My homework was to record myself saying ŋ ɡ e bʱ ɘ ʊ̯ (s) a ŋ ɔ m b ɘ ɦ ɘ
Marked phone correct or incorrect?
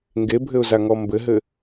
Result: incorrect